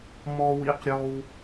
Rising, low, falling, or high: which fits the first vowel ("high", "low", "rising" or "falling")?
high